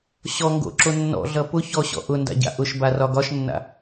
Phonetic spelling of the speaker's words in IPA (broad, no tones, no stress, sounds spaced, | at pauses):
ɕ ɔ ŋ ɡ o̰ ǁ o nː ɔ̰ ɮ ʌ p ʊ ç ɔ ɕ ɔ̰ ʔ ʊ n d a̰ ɟ a̰ ʔ ʊ ʃ b a r ɒ ɡ ɒ ʃ nː a̰